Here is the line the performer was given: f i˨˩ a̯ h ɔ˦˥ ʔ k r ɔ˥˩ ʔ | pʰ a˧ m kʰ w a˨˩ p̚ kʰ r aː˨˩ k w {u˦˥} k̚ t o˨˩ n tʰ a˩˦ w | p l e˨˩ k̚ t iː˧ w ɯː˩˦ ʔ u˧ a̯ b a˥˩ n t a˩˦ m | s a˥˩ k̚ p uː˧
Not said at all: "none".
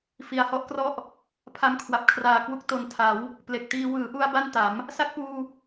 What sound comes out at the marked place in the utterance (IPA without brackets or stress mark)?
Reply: u˦˥